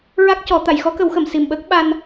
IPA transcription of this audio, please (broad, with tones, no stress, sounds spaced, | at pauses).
ɹ a˦˥ k̚ c ɔ˨˩˦ t̪ a˨˩˨ j x ɔ˧˥ k ə˨˩˦ w x ə˨˩˨ m s i˨˩ m ɓ əː˦˥ k̚ ɓ a˧ n